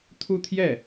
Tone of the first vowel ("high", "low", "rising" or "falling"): falling